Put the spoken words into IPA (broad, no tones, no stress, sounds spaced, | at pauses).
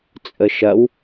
t͡sʼ ə ʃ ɐ w